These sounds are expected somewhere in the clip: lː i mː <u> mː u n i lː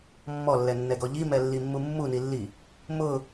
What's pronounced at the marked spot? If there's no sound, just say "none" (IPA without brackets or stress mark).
u